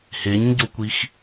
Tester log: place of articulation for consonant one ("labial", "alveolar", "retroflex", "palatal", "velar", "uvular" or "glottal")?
glottal